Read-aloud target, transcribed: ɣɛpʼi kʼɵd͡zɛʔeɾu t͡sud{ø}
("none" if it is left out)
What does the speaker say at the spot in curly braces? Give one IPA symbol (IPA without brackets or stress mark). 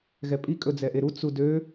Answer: ø